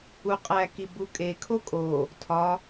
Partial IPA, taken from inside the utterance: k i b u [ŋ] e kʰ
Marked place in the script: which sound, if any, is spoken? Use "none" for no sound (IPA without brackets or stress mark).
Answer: kʼ